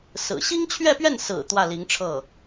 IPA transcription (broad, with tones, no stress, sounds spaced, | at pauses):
s ɹ̩˨˩ ɕ i˥ ŋ t͡ɕʰ ɥ ɛ˥˧ p ɥ ɛ˥˩ n s ɹ̩˨˩ t̪ w ä˥˩ l i˧˥ ŋ ʈ͡ʂʰ ɤ˥˩